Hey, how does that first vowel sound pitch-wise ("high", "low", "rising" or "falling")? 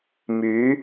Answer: rising